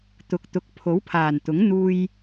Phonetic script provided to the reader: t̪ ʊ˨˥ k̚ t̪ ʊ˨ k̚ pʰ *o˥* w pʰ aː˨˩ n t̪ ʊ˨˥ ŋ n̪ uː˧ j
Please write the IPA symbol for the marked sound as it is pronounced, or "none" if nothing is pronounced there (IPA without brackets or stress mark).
o˨˥